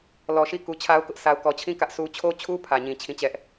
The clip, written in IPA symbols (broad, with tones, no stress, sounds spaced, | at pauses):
l ɔ˨ ʃ i˦˨ k u˨ t͡ɕʰ a˦ ʊ̯ k ʊ˦ ʔ sʰ a˨ ʊ̯ k ɔ˨ t͡ɕʰ ĩ˦˨ k ä˦ ʔ sʰ u˦ t͡ɕʰ o˦ t͡ɕʰ u˦ pʰ ä˨ ɲ ĩ˨ t͡ɕʰ ĩ˦˨ t͡ɕ ɛ˦ ʔ